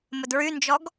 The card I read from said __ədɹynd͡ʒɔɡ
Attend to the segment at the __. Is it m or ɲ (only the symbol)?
m